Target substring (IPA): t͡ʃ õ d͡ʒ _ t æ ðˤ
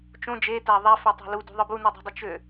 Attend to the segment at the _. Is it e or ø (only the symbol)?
e